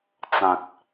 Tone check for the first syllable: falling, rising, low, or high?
low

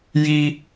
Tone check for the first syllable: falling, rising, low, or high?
high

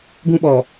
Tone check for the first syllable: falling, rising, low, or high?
high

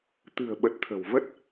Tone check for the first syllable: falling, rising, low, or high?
low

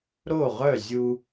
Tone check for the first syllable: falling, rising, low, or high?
falling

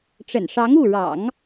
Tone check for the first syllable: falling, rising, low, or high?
low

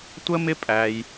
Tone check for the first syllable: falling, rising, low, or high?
high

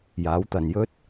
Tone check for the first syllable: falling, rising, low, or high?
rising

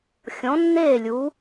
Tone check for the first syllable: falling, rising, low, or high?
rising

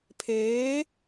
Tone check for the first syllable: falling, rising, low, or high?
rising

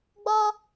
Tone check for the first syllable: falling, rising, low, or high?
high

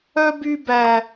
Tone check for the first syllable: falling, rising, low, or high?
high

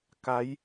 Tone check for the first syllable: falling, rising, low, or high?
rising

